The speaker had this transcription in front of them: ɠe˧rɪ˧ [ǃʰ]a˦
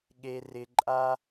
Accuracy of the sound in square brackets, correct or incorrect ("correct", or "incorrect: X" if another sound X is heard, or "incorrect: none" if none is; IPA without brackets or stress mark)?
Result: incorrect: ǃʼ